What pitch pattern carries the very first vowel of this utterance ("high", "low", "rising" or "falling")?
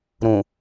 low